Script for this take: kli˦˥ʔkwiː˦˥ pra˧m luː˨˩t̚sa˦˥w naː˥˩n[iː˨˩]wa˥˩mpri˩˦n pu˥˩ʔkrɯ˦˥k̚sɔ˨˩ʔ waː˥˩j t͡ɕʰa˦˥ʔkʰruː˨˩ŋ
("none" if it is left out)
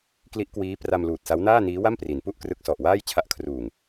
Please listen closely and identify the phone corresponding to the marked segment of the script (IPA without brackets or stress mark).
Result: iː˦˥